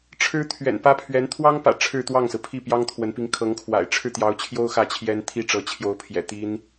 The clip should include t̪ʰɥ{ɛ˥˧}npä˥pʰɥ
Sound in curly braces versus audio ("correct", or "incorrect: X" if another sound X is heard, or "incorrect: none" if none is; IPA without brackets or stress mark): incorrect: ɛ̰˨˩